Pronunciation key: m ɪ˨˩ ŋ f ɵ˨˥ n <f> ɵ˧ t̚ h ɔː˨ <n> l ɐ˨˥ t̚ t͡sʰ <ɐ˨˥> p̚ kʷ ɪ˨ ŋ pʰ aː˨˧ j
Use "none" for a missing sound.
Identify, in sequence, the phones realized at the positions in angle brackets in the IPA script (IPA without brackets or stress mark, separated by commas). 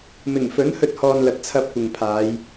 h, n, ɐ˧